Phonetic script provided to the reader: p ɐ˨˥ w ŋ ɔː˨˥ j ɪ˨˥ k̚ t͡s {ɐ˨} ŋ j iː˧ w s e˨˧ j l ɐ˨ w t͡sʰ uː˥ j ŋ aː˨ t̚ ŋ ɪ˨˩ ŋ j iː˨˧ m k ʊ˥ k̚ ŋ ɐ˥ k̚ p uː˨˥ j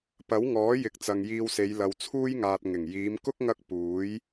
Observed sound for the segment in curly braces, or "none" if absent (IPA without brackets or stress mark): ɐ˨